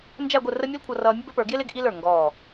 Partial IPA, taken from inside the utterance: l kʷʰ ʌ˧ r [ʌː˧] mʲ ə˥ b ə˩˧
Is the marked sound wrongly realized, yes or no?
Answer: no